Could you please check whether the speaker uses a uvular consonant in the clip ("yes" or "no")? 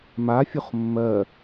yes